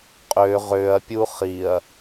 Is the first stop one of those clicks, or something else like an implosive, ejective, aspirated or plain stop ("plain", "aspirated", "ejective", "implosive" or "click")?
ejective